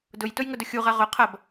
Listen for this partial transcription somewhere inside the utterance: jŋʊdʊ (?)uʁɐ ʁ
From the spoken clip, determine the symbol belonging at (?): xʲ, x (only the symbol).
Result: xʲ